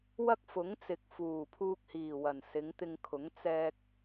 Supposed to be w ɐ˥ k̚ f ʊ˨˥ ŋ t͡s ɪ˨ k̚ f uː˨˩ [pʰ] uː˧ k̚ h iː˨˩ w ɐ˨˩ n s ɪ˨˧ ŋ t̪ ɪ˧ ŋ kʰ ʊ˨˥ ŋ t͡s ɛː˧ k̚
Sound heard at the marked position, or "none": pʰ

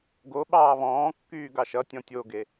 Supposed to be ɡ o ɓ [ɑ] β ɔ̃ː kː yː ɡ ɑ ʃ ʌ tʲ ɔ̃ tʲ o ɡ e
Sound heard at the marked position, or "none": ɑː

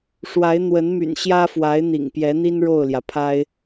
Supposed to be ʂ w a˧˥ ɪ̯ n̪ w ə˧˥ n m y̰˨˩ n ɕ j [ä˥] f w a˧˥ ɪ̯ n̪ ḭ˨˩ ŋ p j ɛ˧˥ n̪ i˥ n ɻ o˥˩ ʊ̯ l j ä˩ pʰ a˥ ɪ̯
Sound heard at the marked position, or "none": ä˥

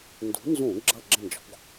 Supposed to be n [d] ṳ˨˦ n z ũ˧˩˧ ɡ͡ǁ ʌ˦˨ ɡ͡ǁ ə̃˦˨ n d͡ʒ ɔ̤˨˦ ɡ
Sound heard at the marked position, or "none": d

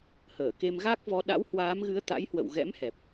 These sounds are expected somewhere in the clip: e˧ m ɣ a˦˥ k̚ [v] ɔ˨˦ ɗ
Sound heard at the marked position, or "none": v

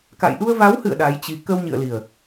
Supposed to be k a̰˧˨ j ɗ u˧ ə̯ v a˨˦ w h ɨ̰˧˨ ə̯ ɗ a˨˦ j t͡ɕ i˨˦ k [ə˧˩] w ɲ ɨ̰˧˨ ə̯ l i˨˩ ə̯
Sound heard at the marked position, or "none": ə˧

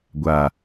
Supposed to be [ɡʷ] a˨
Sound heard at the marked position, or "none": ɡʷ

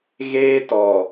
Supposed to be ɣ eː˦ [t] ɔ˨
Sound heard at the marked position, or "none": t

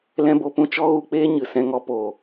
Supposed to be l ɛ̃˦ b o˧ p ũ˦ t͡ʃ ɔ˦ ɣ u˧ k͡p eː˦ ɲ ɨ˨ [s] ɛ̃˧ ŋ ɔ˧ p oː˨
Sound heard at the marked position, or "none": s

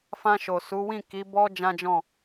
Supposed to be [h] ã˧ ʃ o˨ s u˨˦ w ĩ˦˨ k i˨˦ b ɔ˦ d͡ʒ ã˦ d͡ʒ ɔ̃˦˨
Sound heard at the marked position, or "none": f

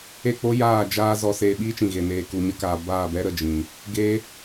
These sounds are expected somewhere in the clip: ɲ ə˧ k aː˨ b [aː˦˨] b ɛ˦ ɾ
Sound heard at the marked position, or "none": aː˦˨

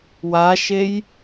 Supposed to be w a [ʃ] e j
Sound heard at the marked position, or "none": ʃ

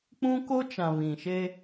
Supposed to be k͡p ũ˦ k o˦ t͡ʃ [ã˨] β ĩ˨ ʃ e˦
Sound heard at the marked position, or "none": ã˨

